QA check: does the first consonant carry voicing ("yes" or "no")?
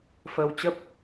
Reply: no